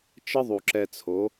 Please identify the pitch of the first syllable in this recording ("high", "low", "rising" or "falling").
high